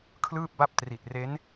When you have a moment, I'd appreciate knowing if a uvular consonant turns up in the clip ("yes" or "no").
no